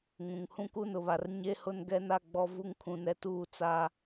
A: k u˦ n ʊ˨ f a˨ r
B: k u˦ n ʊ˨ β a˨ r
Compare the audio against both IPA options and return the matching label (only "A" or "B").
B